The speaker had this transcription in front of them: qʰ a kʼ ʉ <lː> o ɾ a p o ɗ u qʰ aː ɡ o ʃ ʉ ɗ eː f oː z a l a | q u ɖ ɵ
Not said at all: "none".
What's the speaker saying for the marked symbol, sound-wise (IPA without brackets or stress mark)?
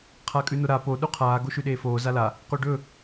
n